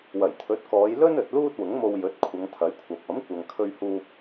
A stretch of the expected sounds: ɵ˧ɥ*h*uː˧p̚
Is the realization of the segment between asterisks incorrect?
no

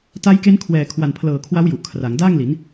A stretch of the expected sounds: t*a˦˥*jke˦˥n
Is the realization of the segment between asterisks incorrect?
no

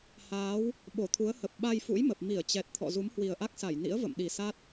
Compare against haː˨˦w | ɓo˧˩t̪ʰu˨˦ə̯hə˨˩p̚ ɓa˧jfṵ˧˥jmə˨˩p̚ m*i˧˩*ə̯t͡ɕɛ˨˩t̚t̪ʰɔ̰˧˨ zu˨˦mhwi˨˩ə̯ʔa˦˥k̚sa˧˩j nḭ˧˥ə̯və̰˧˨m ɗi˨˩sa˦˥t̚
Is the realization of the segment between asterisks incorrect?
no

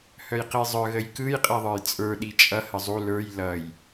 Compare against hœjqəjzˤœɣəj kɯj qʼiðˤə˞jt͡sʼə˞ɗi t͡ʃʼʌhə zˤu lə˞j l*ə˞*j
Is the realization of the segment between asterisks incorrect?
yes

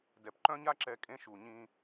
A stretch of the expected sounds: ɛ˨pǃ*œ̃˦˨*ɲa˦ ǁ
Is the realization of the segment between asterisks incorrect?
yes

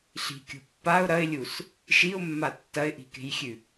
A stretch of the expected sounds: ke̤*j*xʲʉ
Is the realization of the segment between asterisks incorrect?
no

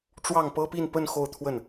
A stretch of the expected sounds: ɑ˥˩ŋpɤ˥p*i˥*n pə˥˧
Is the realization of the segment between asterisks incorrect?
yes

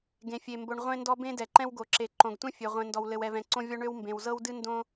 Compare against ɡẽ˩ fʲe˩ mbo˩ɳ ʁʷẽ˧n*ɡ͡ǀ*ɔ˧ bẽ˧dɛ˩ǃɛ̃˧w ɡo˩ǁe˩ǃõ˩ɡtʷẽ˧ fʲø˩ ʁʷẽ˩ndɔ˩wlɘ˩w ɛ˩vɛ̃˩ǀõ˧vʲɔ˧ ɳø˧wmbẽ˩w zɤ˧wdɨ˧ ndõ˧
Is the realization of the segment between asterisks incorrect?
yes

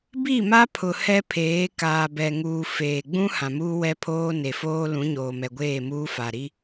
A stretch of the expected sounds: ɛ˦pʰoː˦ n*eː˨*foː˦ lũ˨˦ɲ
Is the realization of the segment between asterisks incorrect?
yes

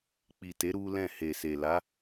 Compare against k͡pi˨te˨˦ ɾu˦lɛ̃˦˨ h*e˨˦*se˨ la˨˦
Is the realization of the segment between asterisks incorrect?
yes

